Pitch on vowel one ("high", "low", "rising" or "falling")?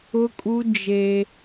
high